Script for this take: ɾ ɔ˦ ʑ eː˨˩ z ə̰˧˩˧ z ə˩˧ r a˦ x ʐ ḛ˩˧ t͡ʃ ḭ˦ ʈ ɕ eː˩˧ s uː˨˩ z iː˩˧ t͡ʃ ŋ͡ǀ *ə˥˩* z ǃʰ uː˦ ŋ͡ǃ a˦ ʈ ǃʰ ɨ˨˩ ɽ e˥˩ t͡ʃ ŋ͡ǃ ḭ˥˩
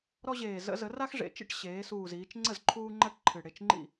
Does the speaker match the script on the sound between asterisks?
yes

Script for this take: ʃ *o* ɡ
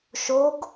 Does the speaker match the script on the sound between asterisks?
yes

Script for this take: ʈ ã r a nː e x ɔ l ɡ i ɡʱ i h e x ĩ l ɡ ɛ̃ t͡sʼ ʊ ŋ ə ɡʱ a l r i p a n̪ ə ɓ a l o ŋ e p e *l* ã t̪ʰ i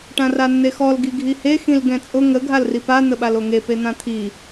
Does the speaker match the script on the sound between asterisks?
no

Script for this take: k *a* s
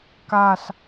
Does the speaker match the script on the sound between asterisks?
yes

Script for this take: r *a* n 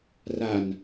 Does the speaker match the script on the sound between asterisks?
yes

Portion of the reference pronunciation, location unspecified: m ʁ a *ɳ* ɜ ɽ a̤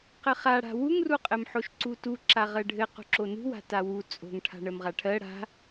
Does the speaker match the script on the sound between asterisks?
no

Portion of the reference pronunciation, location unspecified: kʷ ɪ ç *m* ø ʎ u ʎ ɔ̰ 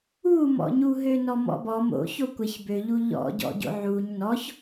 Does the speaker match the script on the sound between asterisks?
no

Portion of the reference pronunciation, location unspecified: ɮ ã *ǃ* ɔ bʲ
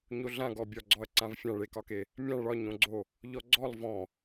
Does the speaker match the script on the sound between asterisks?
no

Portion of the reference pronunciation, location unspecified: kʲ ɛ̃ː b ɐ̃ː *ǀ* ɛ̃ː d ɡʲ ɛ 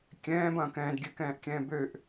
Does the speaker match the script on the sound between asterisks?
no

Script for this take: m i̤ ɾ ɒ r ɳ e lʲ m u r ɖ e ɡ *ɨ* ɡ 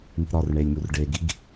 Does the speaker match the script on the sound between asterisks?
no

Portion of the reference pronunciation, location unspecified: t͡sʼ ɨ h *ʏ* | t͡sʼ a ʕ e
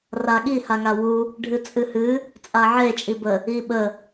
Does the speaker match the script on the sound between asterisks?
no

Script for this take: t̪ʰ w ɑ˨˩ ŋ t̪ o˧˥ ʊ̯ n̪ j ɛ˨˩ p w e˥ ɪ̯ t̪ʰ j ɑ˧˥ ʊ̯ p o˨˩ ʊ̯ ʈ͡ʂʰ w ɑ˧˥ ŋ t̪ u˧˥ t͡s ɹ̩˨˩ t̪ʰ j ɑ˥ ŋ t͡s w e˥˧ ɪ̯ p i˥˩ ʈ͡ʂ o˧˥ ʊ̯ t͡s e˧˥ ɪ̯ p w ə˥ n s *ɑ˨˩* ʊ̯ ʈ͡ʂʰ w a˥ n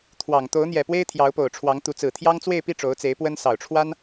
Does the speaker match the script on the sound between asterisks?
yes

